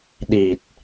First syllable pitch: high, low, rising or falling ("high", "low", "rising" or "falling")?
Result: low